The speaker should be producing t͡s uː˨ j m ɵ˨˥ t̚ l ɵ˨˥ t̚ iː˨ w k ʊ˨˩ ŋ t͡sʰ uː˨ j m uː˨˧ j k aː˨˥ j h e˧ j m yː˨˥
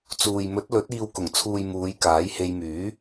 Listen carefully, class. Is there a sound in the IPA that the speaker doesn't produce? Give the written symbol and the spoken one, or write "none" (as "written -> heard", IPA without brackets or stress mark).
none